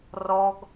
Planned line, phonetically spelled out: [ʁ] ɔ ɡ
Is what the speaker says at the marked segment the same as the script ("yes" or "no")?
no